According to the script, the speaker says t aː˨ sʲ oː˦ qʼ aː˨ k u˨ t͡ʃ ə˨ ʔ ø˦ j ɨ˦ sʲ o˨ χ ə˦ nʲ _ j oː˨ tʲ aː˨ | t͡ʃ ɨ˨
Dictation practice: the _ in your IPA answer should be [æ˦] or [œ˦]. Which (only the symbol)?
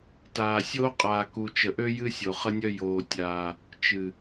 œ˦